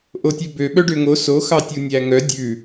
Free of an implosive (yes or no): no